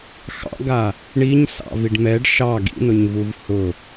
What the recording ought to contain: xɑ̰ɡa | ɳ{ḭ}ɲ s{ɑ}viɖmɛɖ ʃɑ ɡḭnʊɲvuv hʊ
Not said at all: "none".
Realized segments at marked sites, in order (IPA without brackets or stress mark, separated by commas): i, ɑ̰